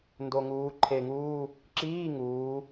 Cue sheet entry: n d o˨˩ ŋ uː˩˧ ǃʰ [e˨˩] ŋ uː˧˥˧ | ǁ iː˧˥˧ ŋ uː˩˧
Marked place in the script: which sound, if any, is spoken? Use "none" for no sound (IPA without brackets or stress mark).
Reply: e˨˩